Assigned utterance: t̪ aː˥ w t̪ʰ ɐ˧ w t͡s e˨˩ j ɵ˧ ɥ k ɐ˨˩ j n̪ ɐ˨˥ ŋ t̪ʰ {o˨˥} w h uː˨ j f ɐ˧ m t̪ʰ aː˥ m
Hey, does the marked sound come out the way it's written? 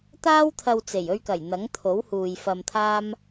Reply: yes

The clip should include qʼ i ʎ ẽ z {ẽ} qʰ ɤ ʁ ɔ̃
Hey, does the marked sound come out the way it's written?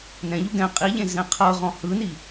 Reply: no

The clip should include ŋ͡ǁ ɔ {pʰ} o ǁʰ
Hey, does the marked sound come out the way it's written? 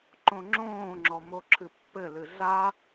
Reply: no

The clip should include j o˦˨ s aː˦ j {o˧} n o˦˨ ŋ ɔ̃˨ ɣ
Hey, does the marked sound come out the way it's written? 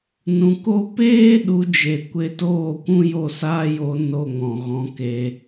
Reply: yes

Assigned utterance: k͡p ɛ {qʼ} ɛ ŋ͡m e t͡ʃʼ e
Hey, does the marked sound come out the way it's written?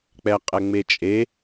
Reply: yes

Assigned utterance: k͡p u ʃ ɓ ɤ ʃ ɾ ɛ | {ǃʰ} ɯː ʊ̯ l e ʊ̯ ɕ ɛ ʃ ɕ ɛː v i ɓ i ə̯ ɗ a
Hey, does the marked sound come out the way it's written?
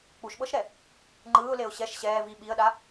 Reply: no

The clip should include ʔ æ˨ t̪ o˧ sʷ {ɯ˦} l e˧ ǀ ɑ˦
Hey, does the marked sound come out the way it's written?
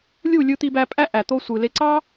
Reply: no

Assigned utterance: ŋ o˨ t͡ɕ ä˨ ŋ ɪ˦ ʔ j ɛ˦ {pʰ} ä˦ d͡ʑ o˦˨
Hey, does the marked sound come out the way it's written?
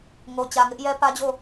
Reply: no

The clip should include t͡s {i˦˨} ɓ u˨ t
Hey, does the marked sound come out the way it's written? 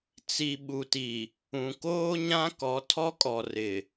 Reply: no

